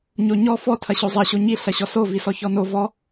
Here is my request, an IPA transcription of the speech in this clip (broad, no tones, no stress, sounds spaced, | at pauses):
ɲ o ɲ ɔ f ɔ tʰ ɐ ɕ o zˤ ɐ ɕ o ɲ i ɬ ɐ ɕ ɔ s o v i s ɔ ç ɔ n o v ɔ